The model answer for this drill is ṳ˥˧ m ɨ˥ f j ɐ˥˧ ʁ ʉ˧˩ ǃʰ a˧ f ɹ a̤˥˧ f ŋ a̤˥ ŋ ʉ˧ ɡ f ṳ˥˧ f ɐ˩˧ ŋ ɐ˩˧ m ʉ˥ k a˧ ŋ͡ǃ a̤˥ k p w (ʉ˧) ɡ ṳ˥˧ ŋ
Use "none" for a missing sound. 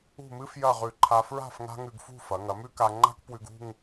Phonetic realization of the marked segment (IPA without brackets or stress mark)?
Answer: ʉ˧